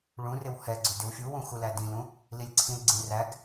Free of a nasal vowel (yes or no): no